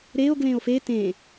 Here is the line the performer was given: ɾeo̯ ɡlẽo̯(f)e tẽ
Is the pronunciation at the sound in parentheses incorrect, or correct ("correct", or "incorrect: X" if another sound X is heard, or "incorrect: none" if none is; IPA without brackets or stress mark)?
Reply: correct